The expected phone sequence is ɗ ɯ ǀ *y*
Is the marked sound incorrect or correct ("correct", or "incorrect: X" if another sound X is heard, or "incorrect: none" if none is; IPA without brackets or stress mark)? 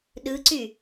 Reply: correct